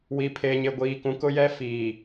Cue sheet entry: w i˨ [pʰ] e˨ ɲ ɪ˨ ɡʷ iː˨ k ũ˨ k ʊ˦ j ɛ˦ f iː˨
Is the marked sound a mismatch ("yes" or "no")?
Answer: no